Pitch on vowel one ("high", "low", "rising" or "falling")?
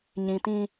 low